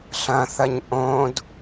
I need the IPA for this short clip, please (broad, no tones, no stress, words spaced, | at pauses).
ɬɐ̃θɐɲ ʔõd